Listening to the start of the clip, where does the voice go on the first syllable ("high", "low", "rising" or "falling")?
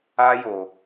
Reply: high